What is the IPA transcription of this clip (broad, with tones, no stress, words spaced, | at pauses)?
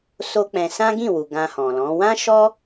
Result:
so˦k͡pɛ̃˧ sã˦ɡĩ˦˨wu˨ ɡã˧hɔ̃˨lɔ̃˨˦ wã˦ʃɔ˦